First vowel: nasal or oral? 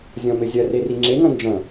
nasal